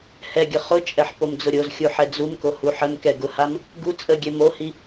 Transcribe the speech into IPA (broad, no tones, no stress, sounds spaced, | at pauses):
h ɛ ɡʲ ə χ ʊ t͡ʃʼ ɛ ħ p o m d͡z ʊ ɾʲ o z xʲ u ħ ɛ d͡z u m k o h u ħ ə m k ɛ ɡ ʊ h a m | ɡ u t͡sʼ ə ɡʲ ɛ m o h i